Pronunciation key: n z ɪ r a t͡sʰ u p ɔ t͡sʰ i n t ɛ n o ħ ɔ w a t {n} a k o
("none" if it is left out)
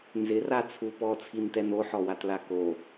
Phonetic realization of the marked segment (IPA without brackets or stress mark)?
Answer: l